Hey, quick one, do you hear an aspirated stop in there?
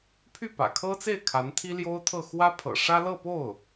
yes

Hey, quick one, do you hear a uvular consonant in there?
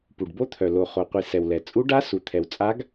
yes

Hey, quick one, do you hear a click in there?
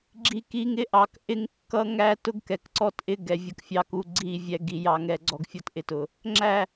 yes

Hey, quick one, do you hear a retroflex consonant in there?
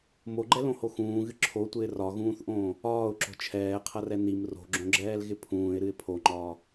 no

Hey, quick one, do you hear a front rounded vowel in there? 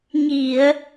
no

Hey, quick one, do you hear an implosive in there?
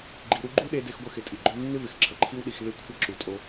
yes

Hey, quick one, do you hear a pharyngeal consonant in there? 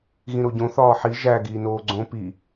yes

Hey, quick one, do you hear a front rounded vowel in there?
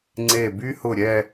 yes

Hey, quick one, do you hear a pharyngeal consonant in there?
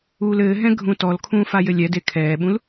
no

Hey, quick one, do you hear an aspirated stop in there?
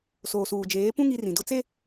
no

